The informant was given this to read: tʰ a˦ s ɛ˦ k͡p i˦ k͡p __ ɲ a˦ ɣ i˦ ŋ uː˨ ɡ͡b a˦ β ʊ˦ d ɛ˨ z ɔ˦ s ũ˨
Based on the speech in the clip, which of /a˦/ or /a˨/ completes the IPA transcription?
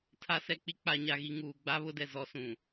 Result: a˦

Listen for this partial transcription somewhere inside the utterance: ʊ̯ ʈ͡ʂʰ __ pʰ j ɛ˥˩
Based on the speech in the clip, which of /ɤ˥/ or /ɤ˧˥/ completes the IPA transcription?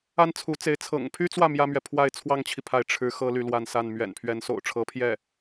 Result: ɤ˧˥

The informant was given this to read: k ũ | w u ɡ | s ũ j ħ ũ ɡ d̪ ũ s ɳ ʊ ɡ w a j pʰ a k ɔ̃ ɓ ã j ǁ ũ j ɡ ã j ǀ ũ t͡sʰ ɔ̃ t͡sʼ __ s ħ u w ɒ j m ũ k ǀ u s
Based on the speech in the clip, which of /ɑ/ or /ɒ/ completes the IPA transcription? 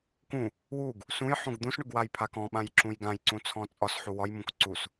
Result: ɒ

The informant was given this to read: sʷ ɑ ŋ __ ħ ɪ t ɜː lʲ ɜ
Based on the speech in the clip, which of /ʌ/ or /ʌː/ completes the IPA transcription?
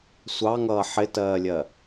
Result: ʌː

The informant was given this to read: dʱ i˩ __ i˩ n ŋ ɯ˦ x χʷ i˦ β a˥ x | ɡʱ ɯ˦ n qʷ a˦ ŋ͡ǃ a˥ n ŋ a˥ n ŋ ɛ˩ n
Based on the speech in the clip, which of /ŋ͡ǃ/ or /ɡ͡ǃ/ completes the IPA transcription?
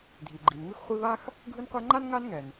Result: ɡ͡ǃ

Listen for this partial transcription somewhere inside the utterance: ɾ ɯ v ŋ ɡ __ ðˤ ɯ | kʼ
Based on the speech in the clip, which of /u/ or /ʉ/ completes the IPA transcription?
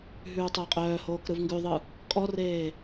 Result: ʉ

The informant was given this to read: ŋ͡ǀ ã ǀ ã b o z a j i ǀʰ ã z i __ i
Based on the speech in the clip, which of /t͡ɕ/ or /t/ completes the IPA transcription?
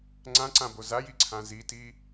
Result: t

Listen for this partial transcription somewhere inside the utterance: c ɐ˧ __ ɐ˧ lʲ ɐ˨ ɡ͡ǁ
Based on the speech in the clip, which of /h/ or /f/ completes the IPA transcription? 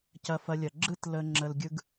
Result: f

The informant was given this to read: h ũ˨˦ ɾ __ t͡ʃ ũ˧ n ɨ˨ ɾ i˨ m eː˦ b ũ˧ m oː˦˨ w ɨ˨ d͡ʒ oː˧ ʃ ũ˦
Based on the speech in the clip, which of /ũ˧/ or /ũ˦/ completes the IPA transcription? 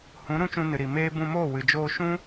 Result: ũ˦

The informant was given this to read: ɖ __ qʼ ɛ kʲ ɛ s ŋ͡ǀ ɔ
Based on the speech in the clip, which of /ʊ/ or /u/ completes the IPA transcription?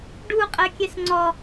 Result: u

